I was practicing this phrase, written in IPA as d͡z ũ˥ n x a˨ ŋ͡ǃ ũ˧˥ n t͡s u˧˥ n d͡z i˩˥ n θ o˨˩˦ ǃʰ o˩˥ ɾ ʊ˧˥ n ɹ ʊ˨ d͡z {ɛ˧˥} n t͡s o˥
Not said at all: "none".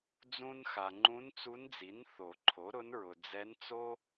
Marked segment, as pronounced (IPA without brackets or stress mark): ɛ˧˥